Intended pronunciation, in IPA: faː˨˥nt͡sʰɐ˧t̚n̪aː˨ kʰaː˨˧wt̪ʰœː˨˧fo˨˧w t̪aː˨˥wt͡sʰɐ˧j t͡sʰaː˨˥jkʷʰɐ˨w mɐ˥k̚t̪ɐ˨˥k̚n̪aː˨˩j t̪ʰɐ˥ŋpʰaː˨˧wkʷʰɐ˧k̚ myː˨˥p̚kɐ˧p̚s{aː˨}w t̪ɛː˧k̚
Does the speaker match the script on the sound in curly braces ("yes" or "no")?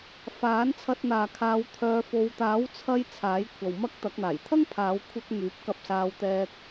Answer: no